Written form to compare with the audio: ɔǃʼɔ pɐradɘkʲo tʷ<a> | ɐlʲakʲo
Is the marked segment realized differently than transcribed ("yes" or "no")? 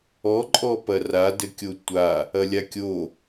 no